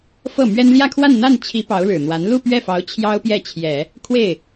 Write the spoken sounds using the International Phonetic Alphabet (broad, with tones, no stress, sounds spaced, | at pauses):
f ɤ˥˩ m ɥ ɛ˥ n l j ä˥˧ kʰ w a˥˧ n n̪ a˥˩ n t͡ɕʰ i˧˥ p ɑ˧˥ ʊ̯ ɻ ɻ̩˨˩ n̪ w a˧˥ n l u˥˧ p ɥ ɛ˥˩ f ɑ˧˥ ʊ̯ t͡ɕʰ j ɑ˥ ʊ̯ p j ɛ˥˩ t͡ɕʰ j ɛ˨˩˦ | kʰ w e˥˩ ɪ̯